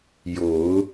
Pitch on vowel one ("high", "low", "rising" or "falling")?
rising